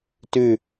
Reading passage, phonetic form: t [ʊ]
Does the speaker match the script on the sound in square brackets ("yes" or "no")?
no